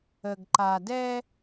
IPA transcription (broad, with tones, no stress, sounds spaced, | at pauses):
ə˧ ɡ ǃ a˧ d ɛ˥